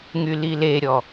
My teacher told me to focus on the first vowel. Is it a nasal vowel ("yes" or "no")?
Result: no